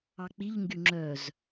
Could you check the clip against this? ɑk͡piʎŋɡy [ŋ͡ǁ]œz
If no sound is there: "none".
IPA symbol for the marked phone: ŋ͡ǁ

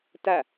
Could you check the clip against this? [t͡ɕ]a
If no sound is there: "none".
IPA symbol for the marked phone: t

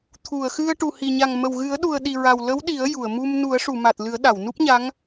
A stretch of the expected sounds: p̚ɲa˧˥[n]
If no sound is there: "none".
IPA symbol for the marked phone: ŋ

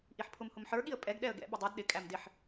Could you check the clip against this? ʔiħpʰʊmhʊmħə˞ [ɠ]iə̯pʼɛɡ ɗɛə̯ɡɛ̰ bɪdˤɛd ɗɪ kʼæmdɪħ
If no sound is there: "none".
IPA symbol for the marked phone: ɠ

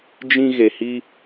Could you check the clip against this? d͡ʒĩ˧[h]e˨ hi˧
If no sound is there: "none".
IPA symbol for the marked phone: ɣ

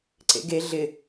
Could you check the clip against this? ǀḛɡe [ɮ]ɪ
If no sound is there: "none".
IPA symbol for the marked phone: ɮ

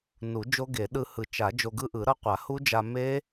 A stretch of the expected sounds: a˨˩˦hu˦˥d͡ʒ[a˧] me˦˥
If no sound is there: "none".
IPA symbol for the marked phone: a˧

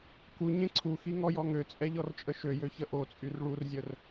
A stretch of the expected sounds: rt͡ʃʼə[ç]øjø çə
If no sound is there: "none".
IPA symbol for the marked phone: ʃ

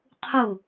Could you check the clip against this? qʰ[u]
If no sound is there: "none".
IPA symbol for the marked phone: u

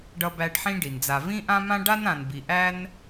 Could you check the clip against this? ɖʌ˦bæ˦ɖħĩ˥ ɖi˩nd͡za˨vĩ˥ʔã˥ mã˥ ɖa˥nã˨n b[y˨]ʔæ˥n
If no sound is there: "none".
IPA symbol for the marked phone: i˨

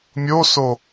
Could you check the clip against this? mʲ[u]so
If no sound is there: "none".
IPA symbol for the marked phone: o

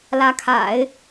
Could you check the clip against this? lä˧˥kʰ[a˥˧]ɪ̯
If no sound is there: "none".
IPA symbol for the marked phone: a̰˨˩˦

